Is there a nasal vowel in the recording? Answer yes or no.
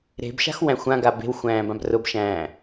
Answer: yes